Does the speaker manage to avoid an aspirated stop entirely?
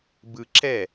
yes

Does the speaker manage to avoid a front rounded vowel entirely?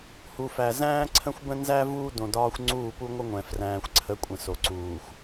yes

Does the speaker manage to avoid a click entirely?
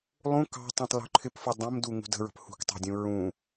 no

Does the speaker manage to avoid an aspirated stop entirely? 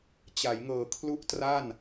no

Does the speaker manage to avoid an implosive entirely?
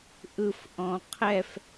yes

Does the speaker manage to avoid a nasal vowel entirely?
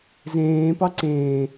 no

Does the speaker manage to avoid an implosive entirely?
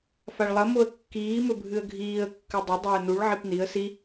yes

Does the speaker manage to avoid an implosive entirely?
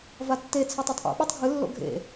no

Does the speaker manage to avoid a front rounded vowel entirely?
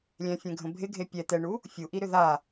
no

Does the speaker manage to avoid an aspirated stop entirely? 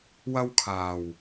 no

